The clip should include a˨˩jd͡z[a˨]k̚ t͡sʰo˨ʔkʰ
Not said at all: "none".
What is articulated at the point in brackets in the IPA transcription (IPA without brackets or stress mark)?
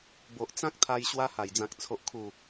ã˨